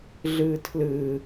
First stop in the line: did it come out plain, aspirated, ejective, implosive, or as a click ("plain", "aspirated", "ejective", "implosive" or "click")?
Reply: aspirated